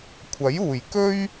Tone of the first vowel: rising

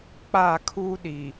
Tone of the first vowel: falling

